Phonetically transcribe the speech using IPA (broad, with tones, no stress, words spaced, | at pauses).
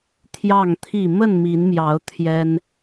t̪ʰjɑ˥˨ŋt̪ʰi˥˨ mə˥˨nmi˨˦nmjɑ˨˦ʊ̯ t̪ʰjɛ˦n